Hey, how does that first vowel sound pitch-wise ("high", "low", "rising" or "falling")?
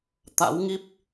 rising